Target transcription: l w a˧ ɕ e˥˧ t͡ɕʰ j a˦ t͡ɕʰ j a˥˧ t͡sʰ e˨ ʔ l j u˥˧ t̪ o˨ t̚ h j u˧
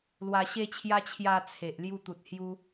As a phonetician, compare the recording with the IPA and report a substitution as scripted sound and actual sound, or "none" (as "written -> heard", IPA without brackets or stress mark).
o˨ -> u˨